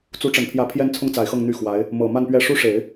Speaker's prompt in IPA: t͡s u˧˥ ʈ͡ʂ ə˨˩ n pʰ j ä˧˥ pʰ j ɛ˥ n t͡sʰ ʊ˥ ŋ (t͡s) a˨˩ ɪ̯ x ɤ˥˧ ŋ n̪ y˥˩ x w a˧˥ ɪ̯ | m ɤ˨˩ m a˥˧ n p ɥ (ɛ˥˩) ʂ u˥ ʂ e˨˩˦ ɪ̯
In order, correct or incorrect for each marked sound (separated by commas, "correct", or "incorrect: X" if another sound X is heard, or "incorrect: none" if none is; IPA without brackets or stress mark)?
correct, correct